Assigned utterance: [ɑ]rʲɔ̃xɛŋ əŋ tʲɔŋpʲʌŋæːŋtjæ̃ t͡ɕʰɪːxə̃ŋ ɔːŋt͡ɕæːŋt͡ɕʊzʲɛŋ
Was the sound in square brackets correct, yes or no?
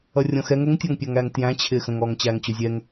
no